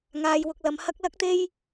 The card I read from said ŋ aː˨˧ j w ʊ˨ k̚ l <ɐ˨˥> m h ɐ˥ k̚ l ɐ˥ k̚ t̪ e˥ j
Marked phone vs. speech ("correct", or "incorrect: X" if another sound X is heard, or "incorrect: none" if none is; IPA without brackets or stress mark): incorrect: ɐ˨˧